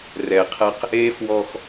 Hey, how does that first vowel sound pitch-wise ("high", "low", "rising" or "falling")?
low